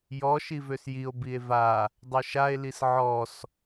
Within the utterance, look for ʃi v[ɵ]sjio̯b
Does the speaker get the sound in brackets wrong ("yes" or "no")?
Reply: yes